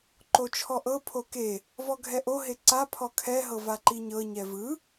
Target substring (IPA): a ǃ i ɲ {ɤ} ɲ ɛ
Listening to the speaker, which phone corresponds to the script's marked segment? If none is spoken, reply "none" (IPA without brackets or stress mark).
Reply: ɤ